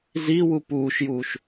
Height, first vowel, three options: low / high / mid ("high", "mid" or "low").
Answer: high